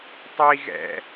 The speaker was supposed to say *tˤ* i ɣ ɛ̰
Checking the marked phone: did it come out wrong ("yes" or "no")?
no